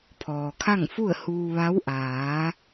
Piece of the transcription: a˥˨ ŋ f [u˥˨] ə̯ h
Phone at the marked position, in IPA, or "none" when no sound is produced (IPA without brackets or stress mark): u˥˨